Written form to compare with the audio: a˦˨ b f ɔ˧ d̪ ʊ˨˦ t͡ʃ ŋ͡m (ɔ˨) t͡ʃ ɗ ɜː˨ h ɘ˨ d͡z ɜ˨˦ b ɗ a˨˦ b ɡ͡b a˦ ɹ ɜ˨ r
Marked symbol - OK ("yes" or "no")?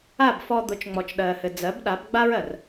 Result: yes